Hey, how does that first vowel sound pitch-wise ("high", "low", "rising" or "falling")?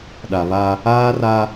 low